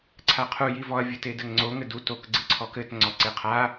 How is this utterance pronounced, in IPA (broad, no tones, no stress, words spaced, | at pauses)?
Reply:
ǀʰaqʰu jivɔɐ̯ vʲɘtedɘŋŋ͡ǀo ŋɘdu tok ɡ͡ǀɨǀʰɔkɘt ŋ͡ǀɔǀeqʰa